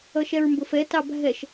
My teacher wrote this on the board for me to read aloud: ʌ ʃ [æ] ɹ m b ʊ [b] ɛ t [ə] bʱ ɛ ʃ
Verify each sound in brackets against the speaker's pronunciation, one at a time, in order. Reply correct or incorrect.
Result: incorrect: ɛ, incorrect: f, incorrect: ɑ

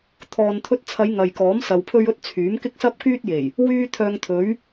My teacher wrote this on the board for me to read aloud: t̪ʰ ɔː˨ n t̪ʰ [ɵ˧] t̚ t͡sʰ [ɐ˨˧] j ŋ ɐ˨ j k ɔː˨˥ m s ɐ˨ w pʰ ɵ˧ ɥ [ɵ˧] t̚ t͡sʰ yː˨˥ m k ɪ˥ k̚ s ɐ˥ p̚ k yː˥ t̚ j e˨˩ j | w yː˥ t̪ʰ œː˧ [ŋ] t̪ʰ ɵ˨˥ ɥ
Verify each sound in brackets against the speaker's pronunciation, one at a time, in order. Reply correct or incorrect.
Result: correct, correct, correct, correct

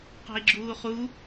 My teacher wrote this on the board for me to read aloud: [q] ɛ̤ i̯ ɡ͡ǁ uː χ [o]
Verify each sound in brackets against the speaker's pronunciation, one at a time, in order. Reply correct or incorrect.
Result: correct, incorrect: u

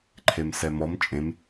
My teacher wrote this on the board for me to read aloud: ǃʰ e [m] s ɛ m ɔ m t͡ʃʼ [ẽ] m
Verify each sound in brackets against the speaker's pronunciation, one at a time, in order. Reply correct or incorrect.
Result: correct, correct

